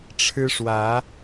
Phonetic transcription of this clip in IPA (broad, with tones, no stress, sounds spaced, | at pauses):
ʈ͡ʂʰ ɻ̩˦ ʂ w ä˨˦